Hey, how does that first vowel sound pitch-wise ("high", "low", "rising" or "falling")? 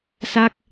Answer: falling